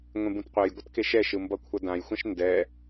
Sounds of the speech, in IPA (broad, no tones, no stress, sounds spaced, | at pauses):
ŋʷ ẽ b ũ t qʷ ɛ j ɡʷ ʌ t k e ʃ ɛ ʃ ɯ m b ʌ kʷʰ ʌ d ã j xʷ ã ʃ n d ɛ